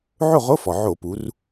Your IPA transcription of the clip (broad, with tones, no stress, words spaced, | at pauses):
ʕo˥˨ʁo˧˥˧fɔ˩ ʕo˧˩˧pu˩˧r